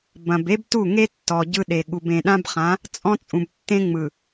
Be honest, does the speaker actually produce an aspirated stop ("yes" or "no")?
no